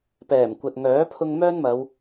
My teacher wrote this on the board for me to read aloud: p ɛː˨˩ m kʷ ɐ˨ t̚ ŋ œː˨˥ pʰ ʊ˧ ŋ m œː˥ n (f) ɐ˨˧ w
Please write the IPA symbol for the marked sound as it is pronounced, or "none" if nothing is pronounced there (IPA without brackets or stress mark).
m